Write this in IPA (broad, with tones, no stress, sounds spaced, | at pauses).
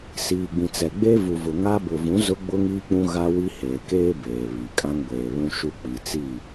s iː˨ ɡ͡b ĩ˨ t͡s ɛ˨ ɡ͡b e˦ v u˨ v ʊ˨ ŋ a˦ b ʊ˨ v ũ˨˦ z ʊ˦ ɡ͡b ʊ˦ ŋ iː˦ k͡p ũ˦ ɣ a˦ w i˦ h eː˨ k eː˦ b eː˨ β i˨ kʼ ã˦ ŋ ɡʷ eː˨ β ũ˦ ʃ u˦ k͡p i˨ t͡s i˦˨